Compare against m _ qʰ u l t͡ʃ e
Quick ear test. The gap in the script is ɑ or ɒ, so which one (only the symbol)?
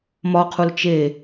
ɒ